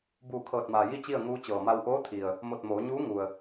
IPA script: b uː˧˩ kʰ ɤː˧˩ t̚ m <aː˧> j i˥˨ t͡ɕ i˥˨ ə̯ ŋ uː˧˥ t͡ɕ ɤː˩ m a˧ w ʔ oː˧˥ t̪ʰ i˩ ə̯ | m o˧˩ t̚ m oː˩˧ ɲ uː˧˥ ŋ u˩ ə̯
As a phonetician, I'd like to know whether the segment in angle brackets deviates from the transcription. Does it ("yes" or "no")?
yes